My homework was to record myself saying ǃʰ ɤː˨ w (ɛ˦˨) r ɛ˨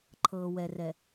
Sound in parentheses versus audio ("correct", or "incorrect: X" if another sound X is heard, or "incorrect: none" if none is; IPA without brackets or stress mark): incorrect: ɛ˨